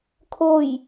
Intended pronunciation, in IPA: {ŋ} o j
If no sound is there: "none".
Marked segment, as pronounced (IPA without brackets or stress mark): kʰ